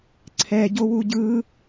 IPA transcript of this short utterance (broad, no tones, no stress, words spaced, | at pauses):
ǀʰɛɟowu ɟɯ